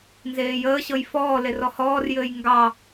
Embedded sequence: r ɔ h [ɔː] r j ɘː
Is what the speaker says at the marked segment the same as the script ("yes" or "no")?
yes